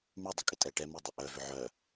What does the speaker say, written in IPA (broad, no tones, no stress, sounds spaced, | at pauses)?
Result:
m y dˤ ʏ kʼ ɪ tʼ ɛ ʈ ɛ m y dˤ y ʔ œ v ʏ ʕ œ